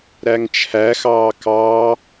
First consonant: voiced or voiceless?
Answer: voiced